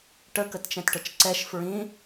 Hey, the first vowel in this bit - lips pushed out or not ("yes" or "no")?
no